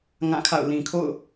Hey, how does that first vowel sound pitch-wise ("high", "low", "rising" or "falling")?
falling